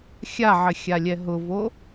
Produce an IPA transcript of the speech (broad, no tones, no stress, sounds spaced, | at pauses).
xʲ a ʕ ɘ xʲ a lʲ ɛ ɦ ʊ v o